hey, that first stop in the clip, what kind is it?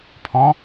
aspirated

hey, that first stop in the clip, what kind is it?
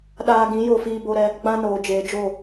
implosive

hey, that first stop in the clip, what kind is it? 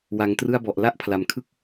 plain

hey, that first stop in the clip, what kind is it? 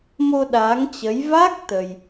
implosive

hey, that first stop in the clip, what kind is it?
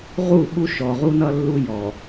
implosive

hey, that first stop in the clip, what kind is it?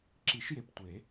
click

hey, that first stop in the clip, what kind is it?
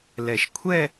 aspirated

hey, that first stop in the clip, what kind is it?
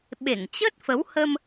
implosive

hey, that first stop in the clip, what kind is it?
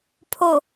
aspirated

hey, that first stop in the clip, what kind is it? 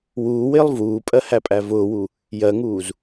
ejective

